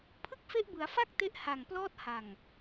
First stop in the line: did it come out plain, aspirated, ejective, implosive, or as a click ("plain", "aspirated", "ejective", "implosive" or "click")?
aspirated